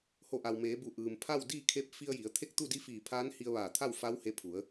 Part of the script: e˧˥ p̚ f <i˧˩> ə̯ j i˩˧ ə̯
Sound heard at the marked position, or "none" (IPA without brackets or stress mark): i˧